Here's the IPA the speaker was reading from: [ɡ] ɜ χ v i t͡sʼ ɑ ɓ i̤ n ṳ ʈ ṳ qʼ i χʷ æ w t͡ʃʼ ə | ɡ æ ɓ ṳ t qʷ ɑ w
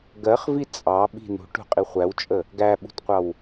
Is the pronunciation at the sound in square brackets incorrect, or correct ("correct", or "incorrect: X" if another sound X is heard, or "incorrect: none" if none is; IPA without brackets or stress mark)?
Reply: correct